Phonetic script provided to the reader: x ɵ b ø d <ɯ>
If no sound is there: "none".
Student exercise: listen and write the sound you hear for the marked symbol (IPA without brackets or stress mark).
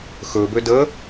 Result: ə